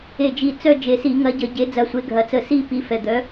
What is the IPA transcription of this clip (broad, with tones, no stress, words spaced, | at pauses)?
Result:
e˨˩d͡ʒi˨˩ t͡sœ˦˨d͡ʒe˨˩si˧˩˧ŋɐ˨˥ ɟə˧˩˧ɟe˨˥ d͡zɐ˨˥sʷe˨˥ɡʱɐ˨˥ t͡sə˧˩˧si˦˨ pi˨˥fɛ˨˩d̪œ˨˥